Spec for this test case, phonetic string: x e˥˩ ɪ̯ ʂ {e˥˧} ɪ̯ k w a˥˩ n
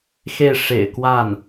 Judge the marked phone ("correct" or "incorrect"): incorrect